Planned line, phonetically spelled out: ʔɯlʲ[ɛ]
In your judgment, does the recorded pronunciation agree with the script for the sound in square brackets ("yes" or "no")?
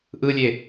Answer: no